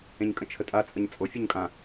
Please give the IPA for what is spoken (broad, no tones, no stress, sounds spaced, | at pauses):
ẽ ɲ kʼ ə̃ t͡ʃʰ ə tʼ a t͡sʼ ə ɲ t͡sʼ o fʲ o ɲ kʼ ã